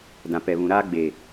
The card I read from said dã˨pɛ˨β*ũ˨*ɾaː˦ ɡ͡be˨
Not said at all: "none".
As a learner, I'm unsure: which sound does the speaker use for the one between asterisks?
ũ˨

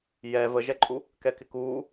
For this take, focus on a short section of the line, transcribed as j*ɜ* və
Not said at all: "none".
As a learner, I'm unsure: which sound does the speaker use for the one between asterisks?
ɛ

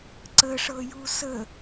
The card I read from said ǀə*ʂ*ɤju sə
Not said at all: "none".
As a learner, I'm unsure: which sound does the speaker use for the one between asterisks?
ʂ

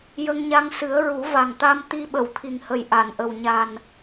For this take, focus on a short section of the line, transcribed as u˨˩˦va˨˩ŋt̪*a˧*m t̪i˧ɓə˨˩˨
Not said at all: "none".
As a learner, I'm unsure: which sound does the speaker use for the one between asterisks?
a˧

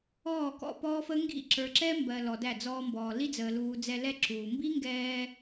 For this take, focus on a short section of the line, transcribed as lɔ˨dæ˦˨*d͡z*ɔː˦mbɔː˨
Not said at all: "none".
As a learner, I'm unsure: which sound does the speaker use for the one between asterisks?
d͡z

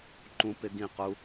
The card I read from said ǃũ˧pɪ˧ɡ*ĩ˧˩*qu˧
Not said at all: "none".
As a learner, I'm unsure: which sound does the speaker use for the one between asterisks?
ĩ˧˩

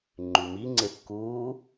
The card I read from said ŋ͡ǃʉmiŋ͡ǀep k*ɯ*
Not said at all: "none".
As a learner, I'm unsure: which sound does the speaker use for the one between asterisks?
u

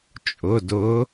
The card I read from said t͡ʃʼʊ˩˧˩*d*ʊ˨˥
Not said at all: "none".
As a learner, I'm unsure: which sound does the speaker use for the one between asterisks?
d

